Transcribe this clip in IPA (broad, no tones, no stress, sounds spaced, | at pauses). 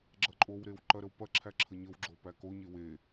ɡ͡ǁ ɐ ǃʼ o w ɾ e w ǃ ɐ ɾ ə w p ɐ ǁʰ æ ǁʰ ə ɲ ə w ɡ͡ǁ o p æ k o ɲ e w e